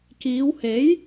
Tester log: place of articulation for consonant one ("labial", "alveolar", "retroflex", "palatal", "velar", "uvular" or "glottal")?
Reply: velar